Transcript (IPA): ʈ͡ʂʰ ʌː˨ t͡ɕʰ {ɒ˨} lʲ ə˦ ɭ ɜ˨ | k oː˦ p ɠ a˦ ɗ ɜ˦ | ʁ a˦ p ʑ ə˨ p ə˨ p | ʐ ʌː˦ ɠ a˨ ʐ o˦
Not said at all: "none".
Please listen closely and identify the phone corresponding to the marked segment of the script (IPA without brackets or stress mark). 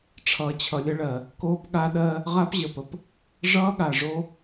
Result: ʌ˨